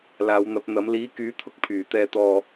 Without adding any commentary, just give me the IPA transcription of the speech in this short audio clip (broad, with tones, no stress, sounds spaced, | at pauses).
l aː˨˧ w n̪ ɐ˨˥ p̚ n̪ ɐ˨˥ m l iː˨˥ k yː˨˥ t̪ʰ ʊ˧ k̚ pʰ yː˨ t̪ ɛː˧ t̪ ɔː˧